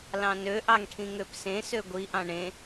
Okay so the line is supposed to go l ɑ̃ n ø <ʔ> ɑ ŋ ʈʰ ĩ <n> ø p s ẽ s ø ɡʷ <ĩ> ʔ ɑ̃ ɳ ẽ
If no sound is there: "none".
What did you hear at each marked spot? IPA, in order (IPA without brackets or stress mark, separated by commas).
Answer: ʔ, ŋ, i